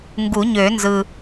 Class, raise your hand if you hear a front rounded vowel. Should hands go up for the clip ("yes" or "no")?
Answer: yes